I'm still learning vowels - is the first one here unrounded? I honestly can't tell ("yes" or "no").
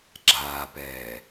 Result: yes